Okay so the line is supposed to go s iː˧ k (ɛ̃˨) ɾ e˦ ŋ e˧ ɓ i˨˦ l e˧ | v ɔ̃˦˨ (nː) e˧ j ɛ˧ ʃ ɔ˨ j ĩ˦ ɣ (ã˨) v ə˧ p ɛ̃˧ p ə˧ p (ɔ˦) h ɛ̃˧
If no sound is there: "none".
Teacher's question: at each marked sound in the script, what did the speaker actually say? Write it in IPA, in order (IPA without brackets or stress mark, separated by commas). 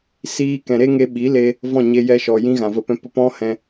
ɛ̃˨, ɲ, ã˨, ɔ̃˦